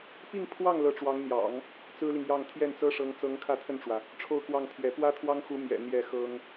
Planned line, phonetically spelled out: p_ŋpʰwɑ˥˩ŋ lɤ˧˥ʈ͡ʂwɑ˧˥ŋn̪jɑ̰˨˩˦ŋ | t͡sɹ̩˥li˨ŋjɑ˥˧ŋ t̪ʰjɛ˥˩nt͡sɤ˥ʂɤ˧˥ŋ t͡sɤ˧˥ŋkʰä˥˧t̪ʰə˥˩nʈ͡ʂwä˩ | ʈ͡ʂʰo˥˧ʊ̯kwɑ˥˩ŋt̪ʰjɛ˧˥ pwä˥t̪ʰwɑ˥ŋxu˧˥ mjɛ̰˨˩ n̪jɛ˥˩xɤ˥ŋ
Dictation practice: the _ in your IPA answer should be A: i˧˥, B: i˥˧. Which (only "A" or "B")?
B